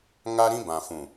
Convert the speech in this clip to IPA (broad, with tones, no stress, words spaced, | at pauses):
ŋa˦ɾĩ˦bã˨fũ˨